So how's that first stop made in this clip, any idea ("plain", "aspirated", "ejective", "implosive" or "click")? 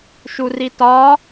plain